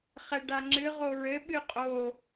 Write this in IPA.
χ ɛ ɖ a ŋ͡ǁ ɨ ʁ o ɹ ɘ ɓ ɨ qʼ o

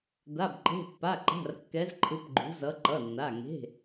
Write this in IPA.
d̪ a˩˧˩ b ǃ e̤˩˧˩ pː a˩˧˩ ǃ a̤˩˧˩ r kː ɛ˩˧ z ǃʰ ɯ˩˧ p ɡ͡ǃ ṳ˩˧ z ʌ˩˧ ǃ ʌ˩˧˩ nː a˩˧˩ ŋ e̤˩˧˩

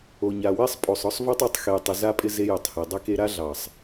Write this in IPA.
o˨ ɲ a˨ w ɛ˦ sˤ pʼ o˨ sˤ ɔ˦ sˤ v o˦ tˤ ɔ˨ tˤ x e˨ j tˤ ɪ˨ z a˦ pʼ ɪ˦ z e˦ j ʏ˨ tˤ h e˨ dˤ ɪ˦ k e˦ ɾ a˦ ɮ ɑ˨ sˤ

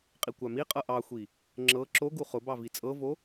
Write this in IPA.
qʼ i kʷ a m i qʼ ɤ ʔ ɑ xʷ i | ŋ͡ǁ ɤ ǁ o ɡ u χ ʊ b ɑ v i t͡sʼ ɤ v o

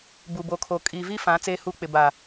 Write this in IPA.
b u˨ b o˨ kʰ o˨ kʼ i˨ v i˦ f ã˨˦ t͡s eː˦ h uː˦ k͡p ɪ˨ b a˨

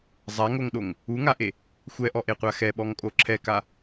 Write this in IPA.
zˤ a ŋ o ŋ ɗ o ŋ | u ŋ a ʔ e | xʷ ɛ ʔ ɔ ʔ e qʷ a x ɛ ɓ ɔ ŋ kʼ o ǁʰ ɛ k a

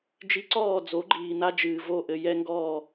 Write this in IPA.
d͡ʒ i˧ ǀ ɔː˦˨ d͡z o˨˦ ɡ͡ǃ iː˨ n̪ a˦ d͡ʒ ɨː˨ v o˦˨ ʔ ɘ˧ j ɛ˦ ŋ ɡ ɔː˦˨

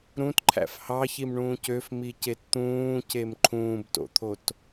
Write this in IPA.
ɾ ũ t ǃʰ æ̰ f h ɑ ç i m ɳ ũː c ø f m i c e t t̪ ũː c e m ǃʰ ũː b t o̰ t̪ʰ o t

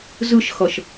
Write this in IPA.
z ɯ ʃ x ʌ ʃ

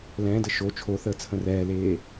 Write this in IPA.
l ɛ̃ː d ə ʃ o t͡ʃʰ o θ əː t͡sʰ ə̃ r ɛː l eː

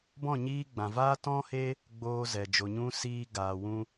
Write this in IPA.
b ɔ̃˦˨ ɲ iː˧ ɡ͡b ã˨ v aː˦ t ɔ̃˦ h e˦ | ɡ͡b oː˧ z ɛ˨ d͡ʒ o˨ ɲ ũ˧ s iː˧ ɡ aː˨ w ũ˧

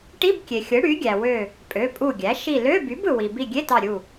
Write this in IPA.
ʈ i˧˥˧ b kʲ e˩ xʲ ɯ˩˥ ɽ y˩˥ ɡʲ æ˩ w ø˧˩ | pʼ ø˩˧˩ pʼ u˧˩ ɡʲ æ˩˥ ʃ i˧˩ l ø˧˥˧ b y˩˥ b ɯ˩ w i˩ b i˧˩ ɡʲ e˧˥˧ t ɑ˧˩ ɾʲ u˧˩

